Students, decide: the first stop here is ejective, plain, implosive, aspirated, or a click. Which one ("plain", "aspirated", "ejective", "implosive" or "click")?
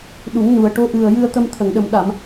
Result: implosive